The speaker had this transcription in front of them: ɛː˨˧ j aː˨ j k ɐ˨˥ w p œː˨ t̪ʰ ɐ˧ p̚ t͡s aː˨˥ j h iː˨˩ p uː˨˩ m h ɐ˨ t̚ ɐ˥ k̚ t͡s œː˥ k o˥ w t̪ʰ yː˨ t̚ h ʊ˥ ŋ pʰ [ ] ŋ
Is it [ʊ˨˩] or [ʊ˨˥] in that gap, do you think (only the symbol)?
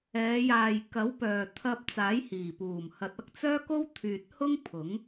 ʊ˨˥